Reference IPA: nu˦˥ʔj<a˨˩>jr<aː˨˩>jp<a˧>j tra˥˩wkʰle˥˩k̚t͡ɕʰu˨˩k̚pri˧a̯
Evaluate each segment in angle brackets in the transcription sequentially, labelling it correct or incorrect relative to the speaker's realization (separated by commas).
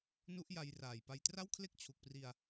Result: incorrect, correct, correct